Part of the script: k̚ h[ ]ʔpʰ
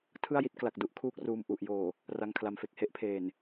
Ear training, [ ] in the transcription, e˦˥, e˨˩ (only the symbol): e˦˥